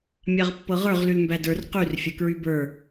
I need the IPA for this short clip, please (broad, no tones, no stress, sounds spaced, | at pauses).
mʲ a ʁ pː ɤ ʁ ə˞ ʁ l y l m b æ d ə˞ r q y r fʲ ɤ k ɹ y b ə˞